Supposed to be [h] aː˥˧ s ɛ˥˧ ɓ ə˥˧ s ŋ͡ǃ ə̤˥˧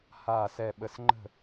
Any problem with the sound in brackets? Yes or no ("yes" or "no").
no